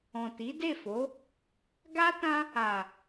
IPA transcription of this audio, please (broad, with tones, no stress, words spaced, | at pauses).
ɔ̃˨ti˨˦ de˦˨fo˨˦ | ɡa˦ tã˦ | a˨